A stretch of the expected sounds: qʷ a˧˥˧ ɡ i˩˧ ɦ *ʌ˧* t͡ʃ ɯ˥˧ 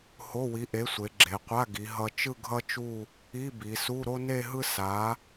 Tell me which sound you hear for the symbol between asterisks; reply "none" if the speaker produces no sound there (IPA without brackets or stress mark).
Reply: ʌ˧